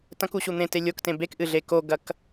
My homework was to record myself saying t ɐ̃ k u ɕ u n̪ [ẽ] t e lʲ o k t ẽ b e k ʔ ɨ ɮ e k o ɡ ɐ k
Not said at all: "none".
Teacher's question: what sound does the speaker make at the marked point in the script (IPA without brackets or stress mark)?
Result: ẽ